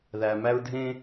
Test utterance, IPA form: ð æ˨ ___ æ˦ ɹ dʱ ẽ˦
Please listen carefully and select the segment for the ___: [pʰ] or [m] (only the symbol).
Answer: m